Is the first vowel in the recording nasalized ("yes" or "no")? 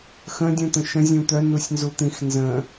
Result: yes